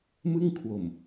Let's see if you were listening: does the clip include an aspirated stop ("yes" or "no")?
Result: yes